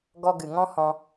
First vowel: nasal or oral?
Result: oral